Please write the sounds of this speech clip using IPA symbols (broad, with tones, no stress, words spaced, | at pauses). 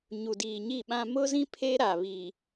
ɲu˨diː˨ɲi˦˨ɓã˦ mʊ˦zĩ˦ pʰe˦ ɾa˨βi˨